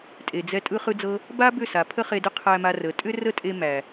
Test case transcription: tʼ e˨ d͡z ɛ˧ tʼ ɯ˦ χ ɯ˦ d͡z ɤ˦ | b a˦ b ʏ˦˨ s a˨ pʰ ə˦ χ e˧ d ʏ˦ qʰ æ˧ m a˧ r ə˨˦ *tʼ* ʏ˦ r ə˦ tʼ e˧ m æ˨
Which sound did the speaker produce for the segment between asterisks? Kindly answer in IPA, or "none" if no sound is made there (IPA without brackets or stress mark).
tʼ